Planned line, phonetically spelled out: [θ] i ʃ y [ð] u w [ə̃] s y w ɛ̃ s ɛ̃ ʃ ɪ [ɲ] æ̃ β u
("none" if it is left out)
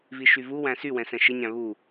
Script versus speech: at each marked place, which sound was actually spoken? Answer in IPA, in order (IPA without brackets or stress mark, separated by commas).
v, v, æ̃, ɲ